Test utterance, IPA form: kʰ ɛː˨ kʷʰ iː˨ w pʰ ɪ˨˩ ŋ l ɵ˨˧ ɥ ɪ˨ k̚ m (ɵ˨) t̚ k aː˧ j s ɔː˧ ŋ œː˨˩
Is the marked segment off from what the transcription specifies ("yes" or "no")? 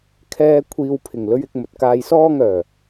no